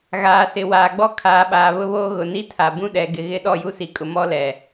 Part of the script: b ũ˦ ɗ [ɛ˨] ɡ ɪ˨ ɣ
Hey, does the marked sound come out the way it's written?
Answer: yes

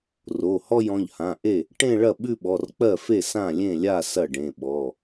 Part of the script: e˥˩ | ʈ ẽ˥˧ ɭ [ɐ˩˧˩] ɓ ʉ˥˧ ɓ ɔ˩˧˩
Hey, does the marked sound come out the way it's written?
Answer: no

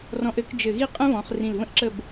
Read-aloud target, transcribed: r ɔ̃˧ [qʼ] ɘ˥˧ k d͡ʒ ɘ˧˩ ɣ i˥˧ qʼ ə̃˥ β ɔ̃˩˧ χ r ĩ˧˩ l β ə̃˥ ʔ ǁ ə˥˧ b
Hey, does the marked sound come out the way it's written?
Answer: no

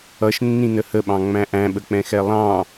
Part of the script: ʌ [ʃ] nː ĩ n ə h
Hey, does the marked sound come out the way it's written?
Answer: yes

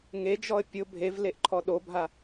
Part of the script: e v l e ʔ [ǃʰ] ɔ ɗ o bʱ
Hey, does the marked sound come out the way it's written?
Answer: yes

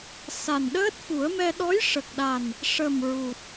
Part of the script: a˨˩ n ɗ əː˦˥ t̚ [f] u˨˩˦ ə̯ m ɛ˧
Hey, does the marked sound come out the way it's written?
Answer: yes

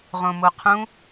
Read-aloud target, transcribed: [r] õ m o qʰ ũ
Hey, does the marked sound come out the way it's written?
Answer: no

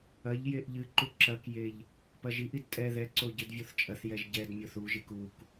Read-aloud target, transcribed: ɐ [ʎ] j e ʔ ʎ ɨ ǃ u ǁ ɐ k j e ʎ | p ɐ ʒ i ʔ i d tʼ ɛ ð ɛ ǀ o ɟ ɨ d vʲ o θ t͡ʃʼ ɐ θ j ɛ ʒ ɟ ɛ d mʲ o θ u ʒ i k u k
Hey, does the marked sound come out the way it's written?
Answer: yes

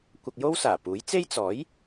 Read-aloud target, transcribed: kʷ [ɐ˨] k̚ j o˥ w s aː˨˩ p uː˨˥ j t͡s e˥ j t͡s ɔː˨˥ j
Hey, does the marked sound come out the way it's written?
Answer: no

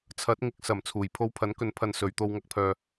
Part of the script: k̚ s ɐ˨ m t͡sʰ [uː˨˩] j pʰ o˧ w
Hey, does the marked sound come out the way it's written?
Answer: yes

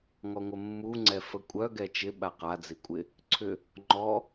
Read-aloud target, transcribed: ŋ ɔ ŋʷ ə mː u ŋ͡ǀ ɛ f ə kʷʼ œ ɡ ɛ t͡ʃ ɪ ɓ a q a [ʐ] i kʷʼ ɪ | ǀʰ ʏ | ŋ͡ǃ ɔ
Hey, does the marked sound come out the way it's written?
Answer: no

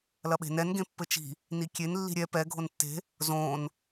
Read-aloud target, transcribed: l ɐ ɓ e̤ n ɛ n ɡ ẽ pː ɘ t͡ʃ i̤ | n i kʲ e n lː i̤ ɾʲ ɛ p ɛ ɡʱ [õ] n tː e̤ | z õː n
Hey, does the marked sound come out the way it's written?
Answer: no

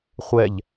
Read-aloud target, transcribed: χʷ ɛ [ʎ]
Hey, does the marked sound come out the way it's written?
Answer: yes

